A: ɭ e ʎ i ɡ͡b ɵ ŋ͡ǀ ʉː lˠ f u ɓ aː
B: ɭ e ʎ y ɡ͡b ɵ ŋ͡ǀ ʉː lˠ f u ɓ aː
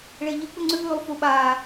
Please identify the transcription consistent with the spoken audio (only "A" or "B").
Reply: A